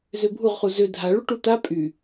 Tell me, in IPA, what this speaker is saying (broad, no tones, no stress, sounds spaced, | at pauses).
z ø bʱ u ʁ χ u z ø dʱ a ɭ u ʈ u t̪ a pʼ y